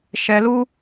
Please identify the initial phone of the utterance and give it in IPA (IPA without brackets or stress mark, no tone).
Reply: ʃ